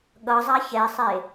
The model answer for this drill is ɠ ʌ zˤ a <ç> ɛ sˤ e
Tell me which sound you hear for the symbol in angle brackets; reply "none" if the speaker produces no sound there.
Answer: ç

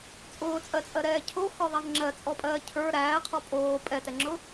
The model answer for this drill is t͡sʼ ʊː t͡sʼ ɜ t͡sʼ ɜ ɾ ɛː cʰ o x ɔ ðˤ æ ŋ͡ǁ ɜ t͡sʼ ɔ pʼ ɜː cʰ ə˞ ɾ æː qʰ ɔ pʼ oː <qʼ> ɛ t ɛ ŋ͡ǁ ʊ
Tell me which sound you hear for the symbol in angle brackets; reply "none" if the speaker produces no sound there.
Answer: pʼ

